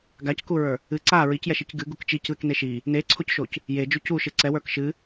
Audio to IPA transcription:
ɡ a c k u ɹ ə˞ | ɨ ǀ a ɹ i c j ɛ ʃ i c ɡ ɨ ɡ u k t͡ʃ i c ð ɨ k n e ʃ i | n e ǀʰ o c ʃ o c | j e d͡ʒ u c u ʃ ɨ ǀ ɛ w ə˞ k ʃ ɨ

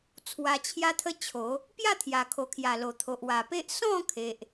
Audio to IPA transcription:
t͡sʰ w a˧ t͡ɕʰ j a˦ t̪ʰ ə˦ t͡ɕʰ o˨˦ | p j a˥˧ t̪ʰ j a˨˩ kʰ o˨˩ kʰ j a˨˩ l o˨˩ t̪ʰ o˨ ʔ w a˨˩ p e˦ ʔ s ɔ̃˥˧ kʰ e˨ ʔ

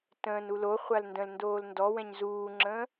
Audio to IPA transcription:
t ə̃ː n u l o χʷ a l n d ə̃ l n d oː l n d ɔ w ɛ̃ ɲ z uː ŋ͡ǁ ə̃ː

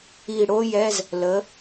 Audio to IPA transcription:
i˧˩ ɽ o˥ j ɛ˧˥˧ z | l ə˩˥

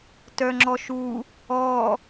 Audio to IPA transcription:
t œ ŋ͡ǁ ɔ ʃ u | ɔ

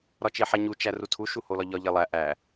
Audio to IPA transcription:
ɾ ɒ t͡ʃ e ħ æ ɲ u t͡ʃ æ r u tʰ u ʃ u h o l ɒ ʎ ɒ ʎ e lˠ æ ʔ æ

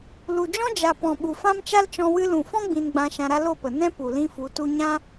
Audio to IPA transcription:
l u˨ d͡ʒ ɔ̃˦ d͡ʒ a˨ p ɔ̃˨ ɓ u˨ f ã˦ m t͡ʃ a˦ l t͡ʃ ɔ̃˧ w ɨ˧ l ũ˨ f ɔ̃˦ ɡ͡b ĩ˧ n ɡ͡b ã˧ ʃ ã˧ ɾ a˦ l o˦˨ p ə˨ n ɛ̃˦ p u˨ l ĩ˦ f u˨˦ t u˦ ɲ ã˦

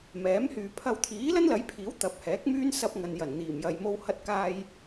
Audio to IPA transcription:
m ɛː˨˥ m h yː˨ pʰ ɐ˧ w t̪ʰ iː˨˥ l ɐ˥ n l ɐ˨˥ j pʰ iː˨˥ w t̪ ɐ˨˥ p̚ h ɛː˨˥ k̚ m yː˥ n s ɐ˧ p̚ ŋ ɐ˨ n j ɐ˨˩ n n̪ iː˨˩ m j ɐ˨ j m o˧ w h ɐ˧ t̚ k aː˧ j

